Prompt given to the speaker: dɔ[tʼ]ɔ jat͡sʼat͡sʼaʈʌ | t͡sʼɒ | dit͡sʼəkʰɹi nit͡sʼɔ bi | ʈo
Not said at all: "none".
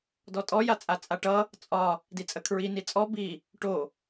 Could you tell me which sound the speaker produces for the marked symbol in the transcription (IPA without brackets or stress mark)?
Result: tʼ